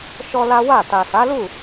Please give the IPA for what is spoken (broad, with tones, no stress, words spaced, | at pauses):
ʃɔ˦la˦ wa˦˨ ta˨sa˨˦lu˦˨